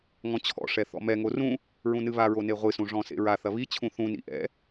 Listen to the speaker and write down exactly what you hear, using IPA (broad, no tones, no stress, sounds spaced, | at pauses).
ŋ ɔ̃ t͡ɕʰ ɔ̰ ʂ ɛ θ ɔ̰ m ɛ ŋ o r ũ | ɹ ũ n ɨ β a ɹ o n e ʁʷ ɨ s ũ ʐ ɔ̃ s ḛ ɹ a θ ɐ β i t͡ɕʰ ũ θ ũ n ḭ ʔ ɛ̰